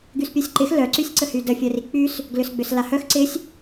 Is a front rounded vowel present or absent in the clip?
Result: present